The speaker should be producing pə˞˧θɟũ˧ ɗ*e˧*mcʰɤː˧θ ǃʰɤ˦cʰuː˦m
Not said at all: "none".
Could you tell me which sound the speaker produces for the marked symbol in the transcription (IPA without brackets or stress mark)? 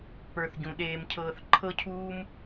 eː˧